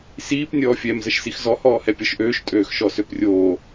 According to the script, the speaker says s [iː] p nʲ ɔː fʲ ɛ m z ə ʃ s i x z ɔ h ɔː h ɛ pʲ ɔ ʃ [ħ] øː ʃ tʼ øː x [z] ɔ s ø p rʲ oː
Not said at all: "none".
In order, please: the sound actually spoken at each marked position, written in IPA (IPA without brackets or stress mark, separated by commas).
iː, ʔ, ʃ